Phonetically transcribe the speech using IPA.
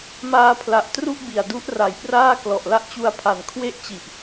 m aː˧ pʰ l a˨˩ ʔ t r u˥˩ ʔ b i˨˩ a̯ d u˦˥ ʔ r a˨˩ j p r aː˥˩ k l ɔ˨˩ ʔ l a˦˥ ʔ t͡ɕ u˧ a̯ pʰ a˩˦ n kʰ w e˥˩ ʔ t͡ɕ i˨˩ ʔ

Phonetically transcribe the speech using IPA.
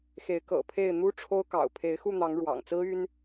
x e˨˦ ɪ̯ k ɤ̰˨˩ pʰ e˥˨ ɪ̯ n̪ u˦ ʈ͡ʂʰ o˦ ʊ̯ k ɑ̰˨˩ ʊ̯ pʰ e˨˦ ɪ̯ x u˥˨ n̪ ɑ˨˦ ŋ ɻ w ɑ̰˨˩ ŋ t͡s ɹ̩˦ y˦ n

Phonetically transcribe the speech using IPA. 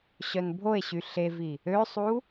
ɕ œ n bʱ o e̯ ɕ y ɬ e v i | ø sˤ u

